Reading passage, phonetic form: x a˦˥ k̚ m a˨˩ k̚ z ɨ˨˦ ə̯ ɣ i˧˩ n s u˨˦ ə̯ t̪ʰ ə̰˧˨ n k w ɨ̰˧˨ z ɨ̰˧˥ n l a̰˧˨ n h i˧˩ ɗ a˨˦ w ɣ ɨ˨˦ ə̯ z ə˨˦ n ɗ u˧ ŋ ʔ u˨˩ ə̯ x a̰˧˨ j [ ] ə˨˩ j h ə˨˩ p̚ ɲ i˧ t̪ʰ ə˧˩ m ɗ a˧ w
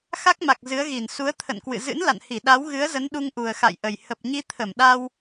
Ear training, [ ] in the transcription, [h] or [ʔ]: ʔ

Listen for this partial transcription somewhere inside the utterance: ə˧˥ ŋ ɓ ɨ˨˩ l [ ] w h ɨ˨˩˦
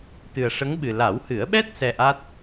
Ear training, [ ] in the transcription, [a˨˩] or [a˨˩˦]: a˨˩˦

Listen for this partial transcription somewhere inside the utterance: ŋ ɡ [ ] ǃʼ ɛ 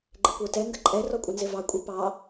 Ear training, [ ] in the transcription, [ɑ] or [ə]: ə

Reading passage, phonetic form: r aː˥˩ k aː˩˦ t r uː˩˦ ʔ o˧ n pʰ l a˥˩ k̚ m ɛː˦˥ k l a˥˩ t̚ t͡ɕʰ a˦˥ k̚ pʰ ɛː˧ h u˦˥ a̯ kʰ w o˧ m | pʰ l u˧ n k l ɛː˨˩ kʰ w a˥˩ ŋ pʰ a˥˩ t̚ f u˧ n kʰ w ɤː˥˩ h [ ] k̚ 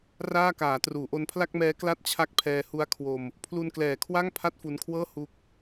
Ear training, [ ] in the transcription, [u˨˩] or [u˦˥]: u˦˥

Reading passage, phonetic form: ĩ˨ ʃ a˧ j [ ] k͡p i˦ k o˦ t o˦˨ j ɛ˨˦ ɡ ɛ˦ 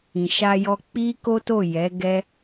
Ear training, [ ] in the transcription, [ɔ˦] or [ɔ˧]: ɔ˧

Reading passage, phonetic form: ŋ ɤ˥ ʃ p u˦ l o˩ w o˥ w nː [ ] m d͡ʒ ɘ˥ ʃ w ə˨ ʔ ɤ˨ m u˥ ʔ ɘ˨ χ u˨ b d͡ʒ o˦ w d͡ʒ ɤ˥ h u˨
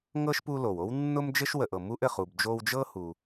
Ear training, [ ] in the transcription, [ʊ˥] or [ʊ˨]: ʊ˥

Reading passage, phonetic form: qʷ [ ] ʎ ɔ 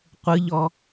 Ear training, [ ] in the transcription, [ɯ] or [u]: ɯ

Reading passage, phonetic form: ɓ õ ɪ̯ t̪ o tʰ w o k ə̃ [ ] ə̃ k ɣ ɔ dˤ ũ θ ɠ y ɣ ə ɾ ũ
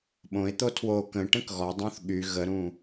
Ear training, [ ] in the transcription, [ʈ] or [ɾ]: ʈ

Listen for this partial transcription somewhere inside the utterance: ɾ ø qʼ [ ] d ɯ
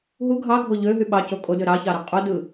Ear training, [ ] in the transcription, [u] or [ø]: u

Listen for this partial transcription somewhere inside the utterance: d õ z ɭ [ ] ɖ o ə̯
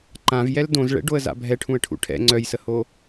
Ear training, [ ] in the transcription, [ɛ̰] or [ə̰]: ɛ̰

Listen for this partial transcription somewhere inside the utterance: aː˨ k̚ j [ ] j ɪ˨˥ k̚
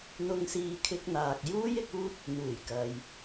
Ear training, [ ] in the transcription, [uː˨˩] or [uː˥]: uː˥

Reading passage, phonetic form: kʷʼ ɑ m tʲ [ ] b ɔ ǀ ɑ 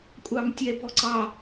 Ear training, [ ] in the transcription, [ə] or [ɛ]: ɛ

